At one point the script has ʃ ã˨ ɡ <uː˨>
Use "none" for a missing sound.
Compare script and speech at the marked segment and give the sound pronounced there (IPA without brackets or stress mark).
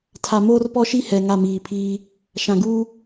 uː˦